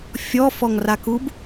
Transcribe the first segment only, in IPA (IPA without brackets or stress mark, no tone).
fʲ